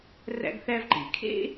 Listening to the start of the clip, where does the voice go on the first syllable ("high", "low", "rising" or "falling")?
high